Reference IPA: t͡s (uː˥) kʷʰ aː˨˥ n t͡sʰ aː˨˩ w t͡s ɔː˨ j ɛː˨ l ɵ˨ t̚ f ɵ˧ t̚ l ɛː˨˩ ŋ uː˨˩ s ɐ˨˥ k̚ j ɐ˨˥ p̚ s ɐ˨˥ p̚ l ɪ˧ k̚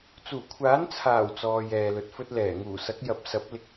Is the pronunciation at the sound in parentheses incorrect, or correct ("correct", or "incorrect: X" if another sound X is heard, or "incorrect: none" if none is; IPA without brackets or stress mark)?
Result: incorrect: uː˨˩